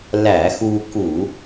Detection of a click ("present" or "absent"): absent